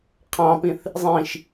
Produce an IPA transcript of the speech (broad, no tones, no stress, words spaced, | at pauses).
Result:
qʰɑ̃pĩθ | zˤĩʃ